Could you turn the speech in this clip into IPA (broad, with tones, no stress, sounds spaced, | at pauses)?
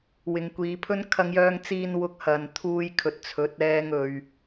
w ɪ˨ ŋ kʷ iː˨˧ pʰ ɵ˥ n kʰ ɐ˧ ŋ j œː˧ ŋ t͡s iː˧ n w ʊ˧ k̚ h ɐ˨ n t̪ʰ uː˧ j kʰ ɵ˨ t̚ t͡sʰ ɵ˨˥ t̚ ɛː˧ ŋ ɵ˨ ɥ